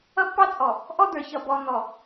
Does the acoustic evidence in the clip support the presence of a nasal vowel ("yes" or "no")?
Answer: no